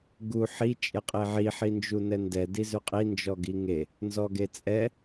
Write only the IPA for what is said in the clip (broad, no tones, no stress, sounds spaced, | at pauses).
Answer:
ɡ u ħ i t͡ʃʼ e qʼ e ʕ i ħ i n d͡ʒ u n ɛ n d ɛ d i z ʉ qʼ i n d͡ʒ ɔ ɡ i ŋ e | n z ɔ ɡ e t͡sʼ ɛ